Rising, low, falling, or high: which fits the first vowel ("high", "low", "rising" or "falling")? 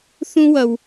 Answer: high